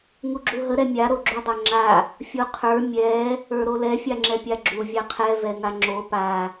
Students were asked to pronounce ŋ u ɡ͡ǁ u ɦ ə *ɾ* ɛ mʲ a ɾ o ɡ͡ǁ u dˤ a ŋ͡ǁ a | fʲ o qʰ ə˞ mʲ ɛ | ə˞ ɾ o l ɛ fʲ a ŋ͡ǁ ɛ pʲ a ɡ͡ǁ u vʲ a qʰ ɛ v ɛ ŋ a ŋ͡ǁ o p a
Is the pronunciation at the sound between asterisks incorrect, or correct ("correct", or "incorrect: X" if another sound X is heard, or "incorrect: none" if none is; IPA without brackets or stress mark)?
correct